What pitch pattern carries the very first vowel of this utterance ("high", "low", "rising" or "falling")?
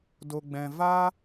low